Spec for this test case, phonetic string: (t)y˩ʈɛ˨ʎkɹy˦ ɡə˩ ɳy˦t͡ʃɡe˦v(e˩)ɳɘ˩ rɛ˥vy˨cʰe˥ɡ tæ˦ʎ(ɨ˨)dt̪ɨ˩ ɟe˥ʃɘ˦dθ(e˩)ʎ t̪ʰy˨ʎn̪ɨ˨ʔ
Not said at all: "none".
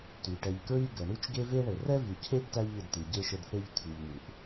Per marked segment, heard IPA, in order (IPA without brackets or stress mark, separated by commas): t, e˦, ɨ˨, e˥